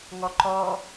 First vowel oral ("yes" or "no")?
yes